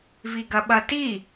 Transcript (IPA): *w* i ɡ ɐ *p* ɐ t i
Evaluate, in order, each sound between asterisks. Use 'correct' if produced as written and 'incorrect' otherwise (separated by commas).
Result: incorrect, incorrect